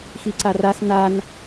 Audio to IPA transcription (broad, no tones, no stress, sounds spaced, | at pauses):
x i ǀ a r a s n̪ a n